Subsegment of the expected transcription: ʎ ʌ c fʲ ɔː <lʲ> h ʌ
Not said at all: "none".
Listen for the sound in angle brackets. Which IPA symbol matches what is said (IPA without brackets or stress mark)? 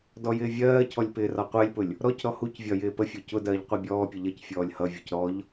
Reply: lʲ